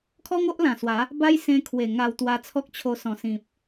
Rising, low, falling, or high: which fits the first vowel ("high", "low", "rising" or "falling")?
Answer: high